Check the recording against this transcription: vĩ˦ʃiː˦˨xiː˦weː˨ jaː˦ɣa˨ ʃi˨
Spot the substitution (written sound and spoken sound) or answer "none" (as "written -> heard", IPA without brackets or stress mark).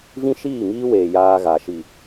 x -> ŋ